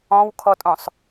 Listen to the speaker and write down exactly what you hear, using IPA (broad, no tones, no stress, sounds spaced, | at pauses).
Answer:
ɔ̃ w kʰ ɔ tʼ õ sˤ